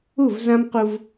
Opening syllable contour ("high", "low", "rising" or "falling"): falling